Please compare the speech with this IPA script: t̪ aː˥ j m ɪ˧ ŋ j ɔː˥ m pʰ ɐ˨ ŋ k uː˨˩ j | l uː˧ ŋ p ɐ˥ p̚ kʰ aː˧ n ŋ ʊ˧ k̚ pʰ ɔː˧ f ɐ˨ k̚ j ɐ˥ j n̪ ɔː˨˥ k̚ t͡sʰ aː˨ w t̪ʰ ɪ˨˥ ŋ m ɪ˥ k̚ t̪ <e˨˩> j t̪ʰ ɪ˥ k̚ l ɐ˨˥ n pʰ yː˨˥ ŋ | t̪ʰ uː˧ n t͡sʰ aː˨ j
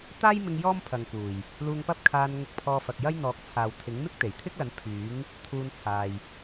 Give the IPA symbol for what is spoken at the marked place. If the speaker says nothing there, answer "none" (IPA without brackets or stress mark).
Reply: e˨˩